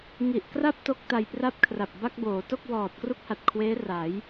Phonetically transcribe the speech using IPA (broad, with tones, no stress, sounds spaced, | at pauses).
ŋ i˨˩ ʔ k r a˥˩ p̚ t o˥˩ k̚ t a˧ j p r a˥˩ p̚ kʰ r a˨˩ p̚ b a˥˩ k̚ b oː˩˦ t o˥˩ k̚ w ɔː˨˩ t̚ k r u˥˩ k̚ h a˨˩ t̚ kʰ w eː˦˥ r a˩˦ j